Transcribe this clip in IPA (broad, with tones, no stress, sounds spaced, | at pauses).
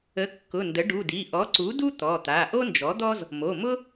ə˩˥ kː ʊ˩˧˩ n d ə˩˥ ɖ u˩˧˩ d i˩˧˩ ʔ ɔ˩˥ ǀ u˩˥ d u˥ t̪ ɔ˩˧˩ t̪ a˩˧˩ ʔ o˥ n d͡ʒ ɔ˩˥ d̪ ɔ˥ z | m o˩˧˩ m ʊ˥